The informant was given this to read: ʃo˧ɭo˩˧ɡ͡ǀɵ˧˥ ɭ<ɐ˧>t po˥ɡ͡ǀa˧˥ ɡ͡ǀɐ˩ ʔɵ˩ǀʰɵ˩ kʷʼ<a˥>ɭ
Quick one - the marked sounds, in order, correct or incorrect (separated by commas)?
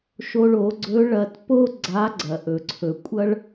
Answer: correct, incorrect